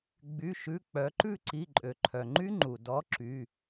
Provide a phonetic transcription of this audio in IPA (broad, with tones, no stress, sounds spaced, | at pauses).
ɡ͡b y˩˧˩ ʃ ʉ˩˧˩ k͡p œ˩˧ ǃ ʉ˦˨ ǀ i˩˧˩ ǃʼ ø˩ ǃʰ œ˩ ŋ͡ǃ y˦ ŋ͡ǃ u˩ d ɔ˨˥ ǁ y˩˧˩